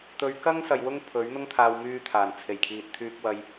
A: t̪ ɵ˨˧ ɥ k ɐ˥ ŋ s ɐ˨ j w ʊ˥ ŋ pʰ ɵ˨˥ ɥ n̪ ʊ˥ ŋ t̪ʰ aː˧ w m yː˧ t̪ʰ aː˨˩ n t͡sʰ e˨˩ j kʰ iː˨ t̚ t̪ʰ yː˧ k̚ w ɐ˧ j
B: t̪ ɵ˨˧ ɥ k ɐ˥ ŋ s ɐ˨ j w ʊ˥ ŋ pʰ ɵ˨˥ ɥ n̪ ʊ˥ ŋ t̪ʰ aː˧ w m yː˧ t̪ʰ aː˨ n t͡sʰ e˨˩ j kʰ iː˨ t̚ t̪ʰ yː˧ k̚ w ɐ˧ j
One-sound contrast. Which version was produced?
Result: A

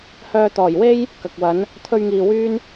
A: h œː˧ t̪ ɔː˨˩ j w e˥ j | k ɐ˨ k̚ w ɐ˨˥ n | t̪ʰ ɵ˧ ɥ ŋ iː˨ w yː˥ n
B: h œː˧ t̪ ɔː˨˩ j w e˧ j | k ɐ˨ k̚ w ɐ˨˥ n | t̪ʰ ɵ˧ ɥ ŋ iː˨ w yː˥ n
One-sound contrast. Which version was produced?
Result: A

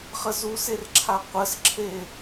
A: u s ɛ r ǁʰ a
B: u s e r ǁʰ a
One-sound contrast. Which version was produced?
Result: B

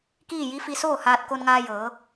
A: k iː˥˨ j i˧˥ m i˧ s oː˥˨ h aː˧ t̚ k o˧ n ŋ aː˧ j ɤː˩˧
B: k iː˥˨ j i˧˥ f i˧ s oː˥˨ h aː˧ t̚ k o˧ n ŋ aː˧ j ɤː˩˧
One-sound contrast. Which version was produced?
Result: B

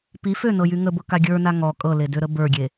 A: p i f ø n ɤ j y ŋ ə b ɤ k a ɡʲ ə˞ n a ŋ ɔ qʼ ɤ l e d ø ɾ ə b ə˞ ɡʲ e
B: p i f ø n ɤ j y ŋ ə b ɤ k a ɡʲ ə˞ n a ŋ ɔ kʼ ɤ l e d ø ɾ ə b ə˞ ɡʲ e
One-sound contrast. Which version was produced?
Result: B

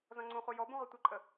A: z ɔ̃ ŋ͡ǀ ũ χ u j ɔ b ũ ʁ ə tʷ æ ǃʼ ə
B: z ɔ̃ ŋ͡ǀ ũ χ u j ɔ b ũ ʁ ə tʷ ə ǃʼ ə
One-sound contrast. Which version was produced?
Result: B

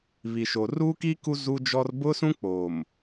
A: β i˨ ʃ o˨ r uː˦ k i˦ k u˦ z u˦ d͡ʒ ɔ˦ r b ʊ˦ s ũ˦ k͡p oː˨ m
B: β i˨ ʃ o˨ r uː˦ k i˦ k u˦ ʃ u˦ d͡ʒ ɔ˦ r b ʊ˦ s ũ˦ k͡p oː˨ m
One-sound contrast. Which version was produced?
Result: A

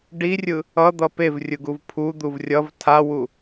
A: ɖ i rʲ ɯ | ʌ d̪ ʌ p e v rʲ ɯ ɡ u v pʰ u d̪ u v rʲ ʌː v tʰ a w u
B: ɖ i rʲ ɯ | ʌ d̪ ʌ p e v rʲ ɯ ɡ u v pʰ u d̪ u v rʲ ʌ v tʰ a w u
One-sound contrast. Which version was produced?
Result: B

